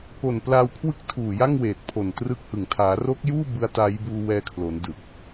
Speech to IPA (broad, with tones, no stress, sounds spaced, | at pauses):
k o˨˩ n p l aː˧ w kʰ w ɯ˥˩ k̚ tʰ uː˨˩ j a˥˩ ŋ w eː˨˩ t̚ pʰ o˨˩ n t r ɯ˦˥ k̚ h ɯ˨˩ ŋ tʰ aː˩˦ r o˦˥ k̚ j uː˥˩ b ɯ˦˥ a̯ t a˦˥ j b uː˧ w ɛː˧ kʰ l o˩˦ n d ɯ˨˩ k̚